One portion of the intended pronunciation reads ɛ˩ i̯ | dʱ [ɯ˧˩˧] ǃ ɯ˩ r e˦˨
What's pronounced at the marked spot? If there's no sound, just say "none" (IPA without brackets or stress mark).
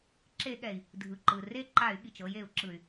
ɯ˩